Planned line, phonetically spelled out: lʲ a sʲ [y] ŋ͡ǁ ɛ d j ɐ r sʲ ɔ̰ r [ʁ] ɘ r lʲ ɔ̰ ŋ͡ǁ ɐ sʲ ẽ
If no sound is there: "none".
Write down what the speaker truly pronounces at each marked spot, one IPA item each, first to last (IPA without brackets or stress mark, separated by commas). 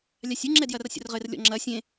u, ʁ